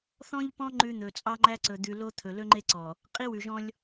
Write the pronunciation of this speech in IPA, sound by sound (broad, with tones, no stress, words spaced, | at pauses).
θɔ̃˦ʎpɔ̃˦ ŋ͡ǃʉ˦n̪ɵ˨ t͡sʼɑ˦ŋ͡ǃæ˦ ǀɵ˨d̪ʉ˨lo˦ t̪ʰɵ˨ lɵ˦ŋ͡ǃe˦ǀɔ˨ | qʼi˦wʉ˨ʒɔ̃˦lʲ